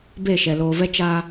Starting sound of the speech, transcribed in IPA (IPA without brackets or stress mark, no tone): b